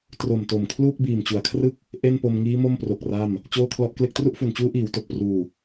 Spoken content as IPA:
t r o˨˩ m t o˨˩ m kʰ l uː˥˩ k̚ b iː˨˩ m t͡ɕ u˩˦ a̯ kʰ r ɯ˥˩ k̚ | ʔ e˥˩ n p o˧ m ŋ iː˦˥ m o˥˩ m p r o˨˩ k̚ r a˥˩ m | t͡ɕ oː˥˩ kʰ l ɔ˦˥ ʔ k l e˥˩ k̚ t r u˥˩ ʔ f u˨˩ n t͡ɕ uː˦˥ ʔ iː˩˦ w t o˨˩ k̚ p r uː˨˩

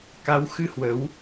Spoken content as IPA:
k a˨˦ w x ɨ˧ h w ə˨˦ w

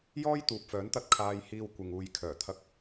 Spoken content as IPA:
j ɔː˥ j t̪ uː˨ p̚ f œː˨˥ n t̪ ɐ˧ t̚ kʰ aː˧ j h iː˧ w kʷ ɪ˨ ŋ uː˨ j kʰ œː˨˩ t̪ʰ ɐ˧ k̚

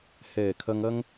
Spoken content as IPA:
h ɛː˨˩ kʰ ɐ˧ ŋ ɐ˥ ŋ

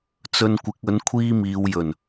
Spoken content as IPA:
t͡s ɵ˧ n kʷ ɪ˨˥ k̚ ɵ˨˥ n kʷʰ iː˥ m iː˨˧ w j ɵ˨˩ n

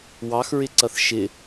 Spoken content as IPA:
w ɑ x ɹ ɪ ǀ ʌ θ ʃ ɪ

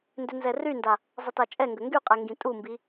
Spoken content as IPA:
n d ʏ n z ɛ r y n d a | zˤ ɪ t a t͡ʃʼ ɛ ŋ ɡ ə ŋ ɡ y qʼ ɛ ŋ ɡ ĩ tʼ u m b i

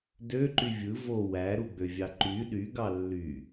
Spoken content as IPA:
d ø ǃ y vʲ ɯ v o w æ ɾ u ɡ͡b ø vʲ ɑ ǃ y ɗ y ɡ ɑ lː y

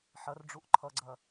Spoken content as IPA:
ħ ɐ r ɖ͡ʐ u ʔ ǃʰ ʌ ɡ͡ǀ ɐ

